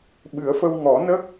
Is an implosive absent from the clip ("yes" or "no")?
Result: no